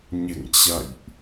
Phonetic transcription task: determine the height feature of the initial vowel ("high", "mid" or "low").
mid